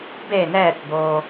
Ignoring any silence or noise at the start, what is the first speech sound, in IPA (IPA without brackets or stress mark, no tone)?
b